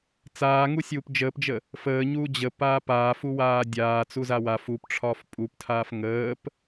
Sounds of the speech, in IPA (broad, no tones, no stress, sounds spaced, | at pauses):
t͡s aː ŋ u sʲ uː p d͡ʒ əː p d͡ʒ ə | f əː ɲ uː d͡ʑ ə p aː p aː f u w aː dʲ aː t͡s u z a w a f u p ʈ͡ʂʰ ɒː f pʼ u p tʰ aː f ŋ əː p